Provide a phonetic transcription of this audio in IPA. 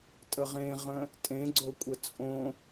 tʼəʁẽʁə̃ | tʼẽɡ͡ǀokʷʼə t͡sʼõ

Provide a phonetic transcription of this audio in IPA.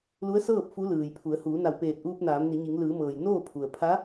lu˧˥ə̯sɤː˥˨p̚ fu˧˥lɯː˩jpʰu˩˧ə̯ huː˩˧na˧˩wpeː˧˩t̚ʔuː˧p̚ naː˩˧mni˩˧ɲi˩˧ŋ lɯː˩˧mɤː˩j noː˥˨pʰu˩ə̯ pʰa˧˥

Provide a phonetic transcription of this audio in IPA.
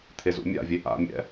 t̪ʰezṵmʲa̰vʲe ʔa̰mʲɛ̰

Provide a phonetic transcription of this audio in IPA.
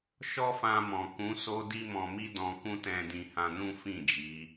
ʃɔ˦fã˧mɔ̃˨ kũ˨˦so˦ di˦mɔ̃˧mi˦dɔ̃˧ kũ˦tɛ̃˧ dĩ˧hã˧nũ˦fĩ˦˨ d͡ʒi˨˦

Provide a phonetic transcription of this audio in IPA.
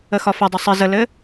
əxɒfɘdˤʊ sˤɘ zəlɘ

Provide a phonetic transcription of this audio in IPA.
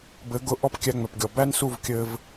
bɘ˨˦ɡʊ˧ ʔɔ˦pkʲæ˧ŋ͡mœ˨pɡʲɔ˨ bæ˦nsu˦˨v kʲɘ˧v

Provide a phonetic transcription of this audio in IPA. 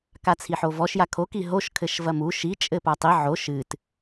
kat͡sʰiħovɔʃ jakʰo kiɦoʃ kʰɘʃvɐmu ʃi t͡ʃʼɘpatˤi ʕo ʃɨt

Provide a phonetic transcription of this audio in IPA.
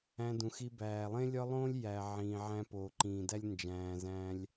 æ̃˧dũ˨xi˧ bæː˨ lˠẽ˦lʲɒ˦lˠõː˦lʲ jæ˨ ʕĩː˨ʕæ̃˧poː˨ ǃĩː˨dæ˦lʲ nd͡ʒæ̃ː˨zæ̃ː˧lʲ

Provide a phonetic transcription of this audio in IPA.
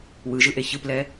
wɯʒɯ ʔeçɯplɛ

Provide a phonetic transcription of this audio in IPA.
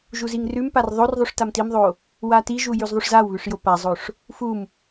ʒuziŋrʉmpar ðˤorðˤuʂ tamtimðˤo | watiʒu jʉzðˤuʂzawβʉʂ jopazˤoʂ | fum

